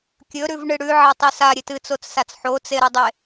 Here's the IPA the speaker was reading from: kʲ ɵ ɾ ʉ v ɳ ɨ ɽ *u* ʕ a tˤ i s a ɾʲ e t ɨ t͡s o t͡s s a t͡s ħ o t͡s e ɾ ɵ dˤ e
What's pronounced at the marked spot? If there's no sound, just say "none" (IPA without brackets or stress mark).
ʉ